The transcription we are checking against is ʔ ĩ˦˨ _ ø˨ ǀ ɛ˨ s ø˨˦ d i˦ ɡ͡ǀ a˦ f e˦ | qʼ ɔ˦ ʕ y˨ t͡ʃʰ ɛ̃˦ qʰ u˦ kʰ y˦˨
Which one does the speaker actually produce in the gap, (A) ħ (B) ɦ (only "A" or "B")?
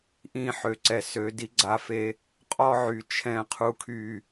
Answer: A